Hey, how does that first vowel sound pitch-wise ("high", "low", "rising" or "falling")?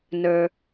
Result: low